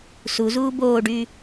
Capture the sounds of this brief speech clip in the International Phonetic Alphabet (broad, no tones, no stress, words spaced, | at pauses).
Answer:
suzuː boːɖyː